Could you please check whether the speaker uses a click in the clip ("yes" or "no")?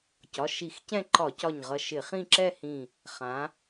yes